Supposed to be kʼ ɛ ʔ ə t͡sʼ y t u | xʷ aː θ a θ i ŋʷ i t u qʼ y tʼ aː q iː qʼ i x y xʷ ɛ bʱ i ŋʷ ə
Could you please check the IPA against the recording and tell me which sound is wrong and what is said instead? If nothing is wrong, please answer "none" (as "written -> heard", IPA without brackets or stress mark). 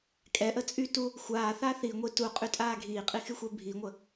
q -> ɡʱ